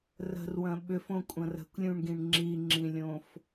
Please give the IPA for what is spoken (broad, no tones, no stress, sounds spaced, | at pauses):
r ə̤ r w ɐ̃ ɓ ʏ f õ kʷʼ ɐ̃ r ə̤ kʷ lʲ ũ ɳ ɡ ĩ ɳ ŋ͡ǁ i ŋ͡ǁ ĩ lʲ õ f